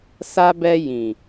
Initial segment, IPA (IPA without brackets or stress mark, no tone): s